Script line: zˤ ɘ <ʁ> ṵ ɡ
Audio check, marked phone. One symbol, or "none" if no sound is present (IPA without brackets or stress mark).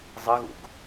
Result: ɣ